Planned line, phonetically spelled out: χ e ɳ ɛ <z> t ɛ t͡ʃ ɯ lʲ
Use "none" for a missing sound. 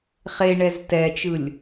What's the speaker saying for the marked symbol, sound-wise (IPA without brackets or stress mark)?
z